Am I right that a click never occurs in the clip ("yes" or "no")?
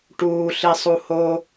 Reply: yes